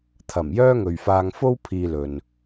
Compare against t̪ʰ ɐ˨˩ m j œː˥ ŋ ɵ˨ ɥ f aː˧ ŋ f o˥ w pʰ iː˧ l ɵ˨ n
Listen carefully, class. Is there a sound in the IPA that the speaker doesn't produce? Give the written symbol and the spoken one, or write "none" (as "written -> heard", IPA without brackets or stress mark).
none